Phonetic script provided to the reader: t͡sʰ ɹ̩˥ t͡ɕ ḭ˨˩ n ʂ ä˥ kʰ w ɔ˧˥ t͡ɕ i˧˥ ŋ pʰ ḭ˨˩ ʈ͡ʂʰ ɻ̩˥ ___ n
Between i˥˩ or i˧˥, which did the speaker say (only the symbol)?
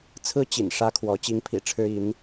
i˧˥